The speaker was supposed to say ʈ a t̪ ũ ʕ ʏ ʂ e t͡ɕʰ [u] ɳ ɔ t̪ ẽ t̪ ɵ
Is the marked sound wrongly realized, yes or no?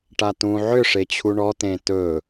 no